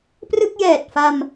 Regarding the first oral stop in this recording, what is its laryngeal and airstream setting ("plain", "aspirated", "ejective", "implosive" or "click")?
plain